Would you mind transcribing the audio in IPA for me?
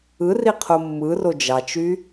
ɯ r i qʰ o mː ɯ r o d͡ʒ ɑ t͡ʃ y

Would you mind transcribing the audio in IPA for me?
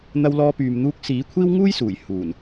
n̪ ɐ˧ w l ɔː˧ p yː˨ m n̪ uː˧ k̚ s iː˨˥ kʷʰ iː˥ w ŋ uː˥ j s uː˨˩ j h uː˨˩ n

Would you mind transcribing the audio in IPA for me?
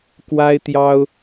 k w a˥ ɪ̯ t̪ j ɑ˥ ʊ̯

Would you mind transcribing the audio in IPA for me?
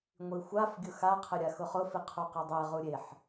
ŋʷ i xʷ a f ɡʲ ʊ x a qʰ ɪ ɾʲ a x ʊ χ ʊ f i qʰ u q i dˤ e ʁ u ɾʲ e ħ

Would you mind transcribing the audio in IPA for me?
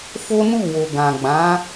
f o˦ n u˦˨ w o˨ ɡ ã˨ ɡ͡b ã˨˦

